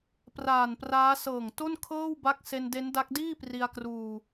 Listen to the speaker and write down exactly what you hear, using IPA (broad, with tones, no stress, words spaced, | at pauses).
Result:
praː˨˩npraː˦˥ sɤː˨˩ŋto˥˩nkʰɤː˥˩wba˦˥k̚ se˧nde˦˥nda˦˥k̚ diː˥˩pri˧a̯kruː˧